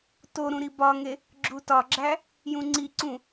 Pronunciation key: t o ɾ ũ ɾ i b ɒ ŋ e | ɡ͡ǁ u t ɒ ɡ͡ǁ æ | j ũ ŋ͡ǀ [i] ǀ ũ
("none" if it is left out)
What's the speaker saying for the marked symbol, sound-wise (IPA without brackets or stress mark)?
i